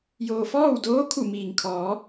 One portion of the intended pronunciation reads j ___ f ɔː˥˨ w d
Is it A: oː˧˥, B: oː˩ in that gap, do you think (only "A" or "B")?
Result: B